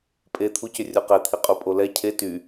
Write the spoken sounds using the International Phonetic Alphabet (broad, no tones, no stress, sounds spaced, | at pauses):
pʼ e t̪ʰ u c ʏ rʲ o q e t̪ʰ i qʼ u pʼ o l ɛ cʰ e t y